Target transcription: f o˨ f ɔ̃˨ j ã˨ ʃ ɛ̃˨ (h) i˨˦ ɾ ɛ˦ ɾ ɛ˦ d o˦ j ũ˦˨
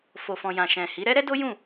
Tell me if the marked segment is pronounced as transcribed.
yes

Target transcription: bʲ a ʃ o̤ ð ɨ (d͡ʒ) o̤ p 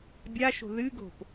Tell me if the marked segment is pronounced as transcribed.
no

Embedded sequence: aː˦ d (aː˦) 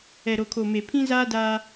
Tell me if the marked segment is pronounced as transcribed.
yes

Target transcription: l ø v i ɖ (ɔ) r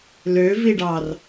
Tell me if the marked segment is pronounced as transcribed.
no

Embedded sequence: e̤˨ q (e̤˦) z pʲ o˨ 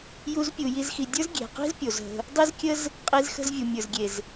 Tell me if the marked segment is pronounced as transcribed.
no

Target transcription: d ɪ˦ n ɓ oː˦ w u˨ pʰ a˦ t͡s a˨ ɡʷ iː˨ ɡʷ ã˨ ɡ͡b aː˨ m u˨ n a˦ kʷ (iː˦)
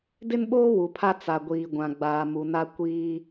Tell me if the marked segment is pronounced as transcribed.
yes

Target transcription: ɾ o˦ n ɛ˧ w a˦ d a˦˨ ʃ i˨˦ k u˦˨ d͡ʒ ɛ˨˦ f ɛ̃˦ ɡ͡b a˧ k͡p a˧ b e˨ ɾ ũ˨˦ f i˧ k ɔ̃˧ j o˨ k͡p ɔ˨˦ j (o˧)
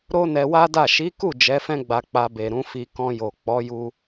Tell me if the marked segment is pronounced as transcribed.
no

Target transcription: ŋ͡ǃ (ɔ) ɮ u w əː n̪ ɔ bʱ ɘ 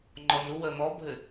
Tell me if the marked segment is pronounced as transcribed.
yes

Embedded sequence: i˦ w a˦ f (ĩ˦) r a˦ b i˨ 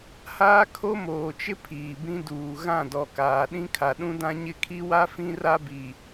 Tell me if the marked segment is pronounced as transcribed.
yes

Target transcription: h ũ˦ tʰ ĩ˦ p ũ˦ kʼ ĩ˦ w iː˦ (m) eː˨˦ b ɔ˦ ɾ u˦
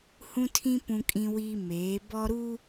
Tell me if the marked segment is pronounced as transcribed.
yes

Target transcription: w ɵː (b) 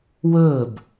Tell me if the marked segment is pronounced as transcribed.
yes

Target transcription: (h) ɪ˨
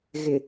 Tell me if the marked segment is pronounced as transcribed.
no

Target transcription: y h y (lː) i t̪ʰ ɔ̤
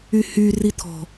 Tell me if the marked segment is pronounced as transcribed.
no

